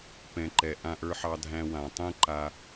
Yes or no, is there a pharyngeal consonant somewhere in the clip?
yes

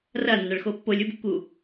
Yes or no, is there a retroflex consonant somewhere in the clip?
yes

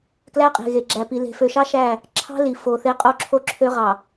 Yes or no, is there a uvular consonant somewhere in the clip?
yes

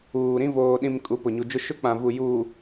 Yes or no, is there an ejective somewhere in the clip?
yes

